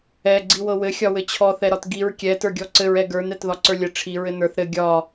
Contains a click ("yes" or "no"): yes